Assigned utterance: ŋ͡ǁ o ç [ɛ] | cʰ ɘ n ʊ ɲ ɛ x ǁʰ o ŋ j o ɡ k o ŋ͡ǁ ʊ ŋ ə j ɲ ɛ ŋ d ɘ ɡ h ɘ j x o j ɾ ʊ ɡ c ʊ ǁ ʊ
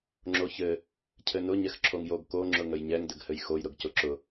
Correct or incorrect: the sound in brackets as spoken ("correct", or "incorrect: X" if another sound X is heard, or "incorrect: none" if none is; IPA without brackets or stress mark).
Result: incorrect: ɘ